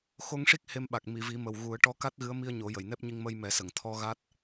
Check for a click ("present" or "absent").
absent